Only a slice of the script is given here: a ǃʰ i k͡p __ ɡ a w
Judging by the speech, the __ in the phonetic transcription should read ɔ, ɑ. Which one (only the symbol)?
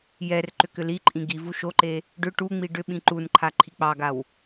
ɑ